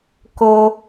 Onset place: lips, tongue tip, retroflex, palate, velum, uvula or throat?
velum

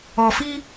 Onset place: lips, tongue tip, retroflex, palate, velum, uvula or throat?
lips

